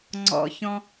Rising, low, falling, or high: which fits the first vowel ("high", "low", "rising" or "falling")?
low